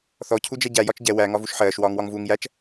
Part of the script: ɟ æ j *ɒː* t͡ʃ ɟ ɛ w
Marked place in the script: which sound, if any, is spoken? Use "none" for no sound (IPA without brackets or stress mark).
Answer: ɒ